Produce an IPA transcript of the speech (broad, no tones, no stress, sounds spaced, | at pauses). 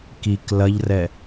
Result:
k i k l ɐ ʎ r ɛ